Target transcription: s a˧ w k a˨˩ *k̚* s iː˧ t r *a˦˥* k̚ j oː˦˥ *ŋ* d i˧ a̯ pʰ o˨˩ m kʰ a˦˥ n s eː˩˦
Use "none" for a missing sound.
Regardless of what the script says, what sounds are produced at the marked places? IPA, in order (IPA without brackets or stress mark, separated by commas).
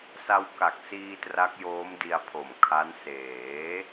k̚, a˦˥, m